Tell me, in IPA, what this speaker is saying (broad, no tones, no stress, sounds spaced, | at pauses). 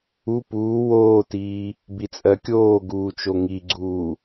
u p uː w oː t iː | b i t͡sʼ ɜ kʲ oː ɡ uː t͡ʃ o ŋ i ɡ͡ǀ uː